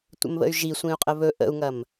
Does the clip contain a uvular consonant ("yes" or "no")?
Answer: yes